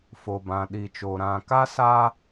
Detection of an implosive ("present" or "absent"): present